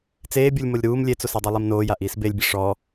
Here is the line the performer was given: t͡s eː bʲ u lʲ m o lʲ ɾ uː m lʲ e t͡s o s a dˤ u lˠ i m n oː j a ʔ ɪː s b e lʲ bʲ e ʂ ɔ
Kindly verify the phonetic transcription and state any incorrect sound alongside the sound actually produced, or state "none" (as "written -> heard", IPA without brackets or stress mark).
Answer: ɪː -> iː